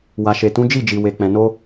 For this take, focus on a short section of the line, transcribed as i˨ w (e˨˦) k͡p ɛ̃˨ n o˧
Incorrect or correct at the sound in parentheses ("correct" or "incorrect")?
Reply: incorrect